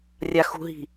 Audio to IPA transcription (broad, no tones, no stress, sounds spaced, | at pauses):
rʲ a x ṳ ɦ i̤